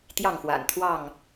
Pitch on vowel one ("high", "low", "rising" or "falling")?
falling